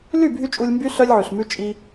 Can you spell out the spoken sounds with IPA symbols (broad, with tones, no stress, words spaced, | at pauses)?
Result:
ly˦˨bʱy˧ t͡ʃʼu˧lʲmby˦ ɬœ˦lʲʕʉ˨ɬmʉ˦ t͡ʃʼi˧